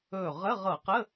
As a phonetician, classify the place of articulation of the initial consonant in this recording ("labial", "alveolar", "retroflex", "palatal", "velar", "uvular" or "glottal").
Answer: uvular